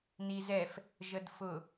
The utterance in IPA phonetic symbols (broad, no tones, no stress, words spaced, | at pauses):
nizɛf | ʒədfʊ